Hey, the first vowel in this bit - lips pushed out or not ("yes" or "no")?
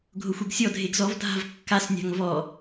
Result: yes